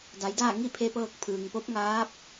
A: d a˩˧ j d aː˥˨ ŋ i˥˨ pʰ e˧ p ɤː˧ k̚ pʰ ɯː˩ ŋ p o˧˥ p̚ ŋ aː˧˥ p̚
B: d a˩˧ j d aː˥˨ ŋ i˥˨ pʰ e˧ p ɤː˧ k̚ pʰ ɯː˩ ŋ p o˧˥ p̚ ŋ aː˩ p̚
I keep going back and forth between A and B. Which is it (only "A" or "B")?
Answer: A